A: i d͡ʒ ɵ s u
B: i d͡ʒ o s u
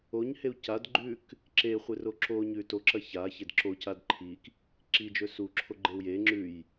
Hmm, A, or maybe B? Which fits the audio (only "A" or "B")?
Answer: A